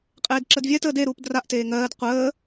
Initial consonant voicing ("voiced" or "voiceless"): voiceless